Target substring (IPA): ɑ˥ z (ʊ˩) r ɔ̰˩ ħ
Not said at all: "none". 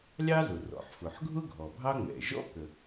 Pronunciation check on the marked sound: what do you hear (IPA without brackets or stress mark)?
ʊ˩